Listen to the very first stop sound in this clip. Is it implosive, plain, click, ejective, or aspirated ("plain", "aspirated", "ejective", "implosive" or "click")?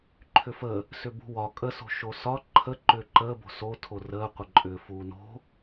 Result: click